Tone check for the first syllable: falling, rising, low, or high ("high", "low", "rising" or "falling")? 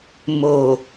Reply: low